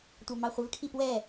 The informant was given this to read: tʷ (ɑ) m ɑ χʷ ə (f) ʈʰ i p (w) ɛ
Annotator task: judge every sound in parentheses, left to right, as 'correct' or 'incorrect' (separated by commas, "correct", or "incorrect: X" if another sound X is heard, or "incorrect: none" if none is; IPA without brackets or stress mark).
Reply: correct, incorrect: v, correct